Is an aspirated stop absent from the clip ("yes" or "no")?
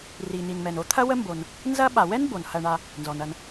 no